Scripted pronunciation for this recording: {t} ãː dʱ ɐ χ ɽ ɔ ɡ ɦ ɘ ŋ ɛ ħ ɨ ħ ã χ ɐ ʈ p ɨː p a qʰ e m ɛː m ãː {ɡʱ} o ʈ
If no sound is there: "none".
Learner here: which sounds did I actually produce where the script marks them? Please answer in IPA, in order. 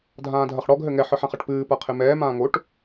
dʱ, ŋ

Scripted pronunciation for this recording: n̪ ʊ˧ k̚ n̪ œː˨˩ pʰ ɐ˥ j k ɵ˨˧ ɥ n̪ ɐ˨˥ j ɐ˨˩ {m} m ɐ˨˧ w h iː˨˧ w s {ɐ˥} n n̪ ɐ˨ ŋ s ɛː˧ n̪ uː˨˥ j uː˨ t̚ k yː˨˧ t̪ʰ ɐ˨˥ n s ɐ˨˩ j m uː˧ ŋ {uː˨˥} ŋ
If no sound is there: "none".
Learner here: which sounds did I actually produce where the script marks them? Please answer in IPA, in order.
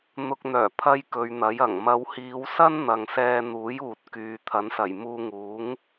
ŋ, ɐ˥, uː˨˥

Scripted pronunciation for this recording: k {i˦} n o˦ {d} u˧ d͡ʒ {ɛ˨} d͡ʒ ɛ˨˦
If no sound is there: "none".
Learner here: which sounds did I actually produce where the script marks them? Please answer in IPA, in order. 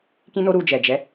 ĩ˦, ɾ, ɛ˨

